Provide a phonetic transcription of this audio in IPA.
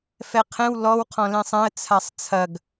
f ɛ qʰ ɛ̃ w l ɔ w qʰ ɔ̃ l ẽ sˤ ɛ̃ ə̯ t͡sʰ a sˤ t͡sʰ ɐ ɡ

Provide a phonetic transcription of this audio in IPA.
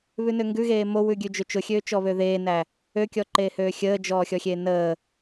β ʉ n ø ŋ ɡ ʉ ɣ eː m o w ʉ ɡʲ ʉ d͡ʒ ø t͡ʃ ʊ xʲ øː t͡ʃ ɔ β ø ð eː n æ | ø kʲ ɔ ǃ eː h øː xʲ əː d͡ʒ ɔː xʲ ɔ xʲ eː n əː

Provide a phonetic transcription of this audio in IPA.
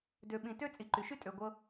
d ø˨ ɓ ĩ˨ t ø˥ t͡sʼ i˨ ǃ y˩ ʃ y˥ tʼ ø˨ ɡʷ ɤ˦

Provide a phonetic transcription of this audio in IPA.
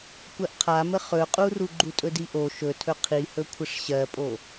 kʷ ɜ ʔ qʰ a m ə χ ɵ qʼ u r u ɡ͡ǃ u tʼ ɵ d i ʔ o ʃ ɵ tʰ ɵ qʰ i h ɵ kʷʰ ə ʂ ɕ ɜ pʼ o

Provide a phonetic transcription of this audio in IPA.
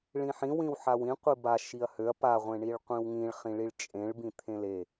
ɭ ĩ ħ ĩ w ĩ w ħ a w ĩ qʷ i b a ʃ i ɐ̯ h ø ɐ̯ p a ʁʷ ẽ ɳ i ɭ qʷ ĩ w ŋ ĩ ɭ χ ĩ ɭ i ɭ t͡ʃʼ ẽ ɭ b ĩ t̪ʰ ẽ l e

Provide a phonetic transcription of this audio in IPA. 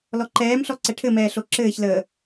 l ɔ ǃ ɛː m ɬ ɔ ǀ ɛ ʈʰ ɘ m ɛː ɬ o ǁ ɘː ç l əː

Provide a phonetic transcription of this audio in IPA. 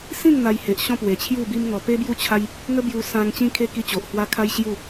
s ĩ˥˧ ŋ n̪ a˧ j h e˨ ʔ ɕ ɔ̃˥˧ p w e˨˩ t͡ɕʰ j u˥˧ b i˦ m ŋ ɔ˧ p e˦ b j u˦ t͡ɕʰ a˦ j | ŋ ə˦ b j u˧ s ã˧ ŋ t͡ɕ ĩ˧ kʰ e˧ k i˧ t͡ɕ o˨ ʔ h w a˧ kʰ a˦ j ɕ j u˥˧

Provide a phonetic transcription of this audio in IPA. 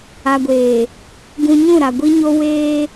a˨ ɡʷ eː˨ | ɡ ũ˨ ɲ ũ˦˨ ɾ a˨ ɡʷ i˦ ɲ o˦ w eː˦

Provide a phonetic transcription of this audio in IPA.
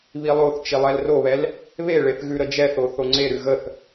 β i lˠ o θ t͡ʃ i lˠ ɛ l r o β ɛ l | β e ɭ e θ ɣ ʉ ɾ ə d͡ʒ ɛ θ o θ o ŋ͡ǀ e ɾ ʉ ɣ ə θ

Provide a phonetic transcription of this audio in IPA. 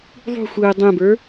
ðˤ ṳ xʷ ɯː dˤ ɛ̃ b ə˞

